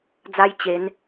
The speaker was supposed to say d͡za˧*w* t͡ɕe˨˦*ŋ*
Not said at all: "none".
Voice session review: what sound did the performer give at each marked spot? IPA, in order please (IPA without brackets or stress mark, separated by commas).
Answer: j, n